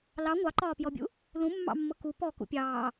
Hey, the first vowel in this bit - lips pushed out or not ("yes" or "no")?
no